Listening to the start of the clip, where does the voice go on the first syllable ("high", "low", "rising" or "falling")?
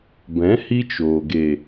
rising